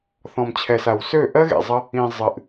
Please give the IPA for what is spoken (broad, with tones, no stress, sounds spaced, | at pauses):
θ ɔ̃˨ m t͡ɕʰ ɛ˨ s a˨ w s ø˦˨ ʔ ɜ˦ ɣ ḛ˨ zˤ ə˧ | ĩ˨ zˤ ɨ˨ ʔ